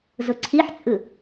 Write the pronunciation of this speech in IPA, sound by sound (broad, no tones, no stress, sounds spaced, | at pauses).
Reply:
z ʊ ǀʰ i ħ t͡sʼ ɯ